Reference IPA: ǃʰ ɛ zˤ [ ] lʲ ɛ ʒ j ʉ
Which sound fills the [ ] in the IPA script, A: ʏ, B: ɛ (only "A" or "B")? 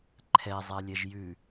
B